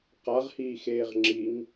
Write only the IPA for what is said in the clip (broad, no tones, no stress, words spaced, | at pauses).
qaʁhiː xeːʁŋ͡ǁiŋ